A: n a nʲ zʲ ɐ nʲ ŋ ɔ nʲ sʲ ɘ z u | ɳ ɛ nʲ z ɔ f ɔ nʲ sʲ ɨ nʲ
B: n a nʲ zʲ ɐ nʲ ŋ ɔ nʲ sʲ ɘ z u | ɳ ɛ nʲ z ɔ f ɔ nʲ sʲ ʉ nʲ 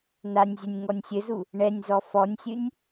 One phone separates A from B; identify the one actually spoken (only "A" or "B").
A